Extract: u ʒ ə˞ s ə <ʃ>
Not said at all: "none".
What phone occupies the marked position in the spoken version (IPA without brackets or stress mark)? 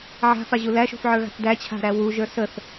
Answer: θ